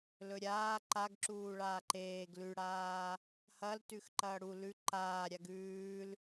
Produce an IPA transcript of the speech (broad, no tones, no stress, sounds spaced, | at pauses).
l ɵ ɾʲ aː ǃ a ɡ ǁ uː ɭ aː ǃ eː ɡ l ʉ ɽ aː | h ɐ l t ʉ x ǃ ɐː ɽ u l ʉ ǃ aː ɾʲ a ɡ ʉː l